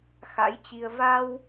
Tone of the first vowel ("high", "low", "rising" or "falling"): rising